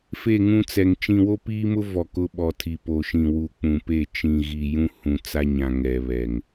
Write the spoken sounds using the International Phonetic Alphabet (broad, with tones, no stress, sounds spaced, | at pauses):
f e˦˨ ŋ ũ˦ t͡s ɛ˨ ŋ t͡ʃ ĩ˨ w o˦ p iː˦ m ʊ˦ v ɔ˨ k ʊ˦ ɓ ɔ˨ tʰ i˨ p o˨ ʃ ĩ˨ w u˨ k͡p ũ˨ p e˦˨ t͡ʃ ĩ˨ ɣ i˨ j ũ˦ h ũ˨ t͡s a˦ ɲ ã˨ ŋ ɛ˨ β ɛ˨ ŋ